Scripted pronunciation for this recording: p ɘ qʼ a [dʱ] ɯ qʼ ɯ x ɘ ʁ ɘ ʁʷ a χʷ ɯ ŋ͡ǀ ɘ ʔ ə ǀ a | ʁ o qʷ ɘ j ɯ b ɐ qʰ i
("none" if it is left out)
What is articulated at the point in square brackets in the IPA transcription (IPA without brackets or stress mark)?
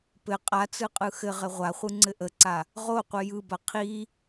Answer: t͡s